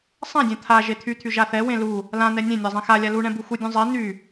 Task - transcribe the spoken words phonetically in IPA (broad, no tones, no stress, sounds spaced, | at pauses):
sˤ ɛ̃ dʲ ɛ̃ t̪ʰ a ʒ e t̪ʰ y t̪ʰ y ʒ a θ ɛ w ẽ l u | l ã n̪ ɛ nʲ ẽ nʲ a zˤ ẽ x a lʲ a l u ɳ ɛ̃ b u x u dʲ ũ zˤ e n̪ y